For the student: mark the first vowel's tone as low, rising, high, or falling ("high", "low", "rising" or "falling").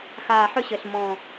low